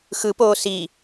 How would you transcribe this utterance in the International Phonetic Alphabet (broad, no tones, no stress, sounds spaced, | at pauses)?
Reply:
x ɯ p oː s i